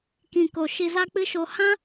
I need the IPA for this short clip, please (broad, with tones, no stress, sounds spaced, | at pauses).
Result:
k ĩ˨ k o˨ ʃ i˧ z a˦ k͡p ɨ˦ ʃ o˧ h ã˦